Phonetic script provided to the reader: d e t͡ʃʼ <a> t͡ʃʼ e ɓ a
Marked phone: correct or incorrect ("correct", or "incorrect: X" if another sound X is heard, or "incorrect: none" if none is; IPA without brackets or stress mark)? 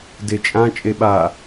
incorrect: ã